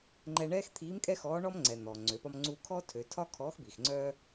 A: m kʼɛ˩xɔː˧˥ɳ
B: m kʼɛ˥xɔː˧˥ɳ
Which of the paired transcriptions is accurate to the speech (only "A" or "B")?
B